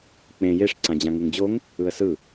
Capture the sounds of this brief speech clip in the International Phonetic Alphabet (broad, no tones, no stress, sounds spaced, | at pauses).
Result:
k͡p ẽ j e ʂ ǀ ã d͡ʑ ã ŋ u ŋ d͡ʑ o ŋ | ɯ ə̯ s ɯ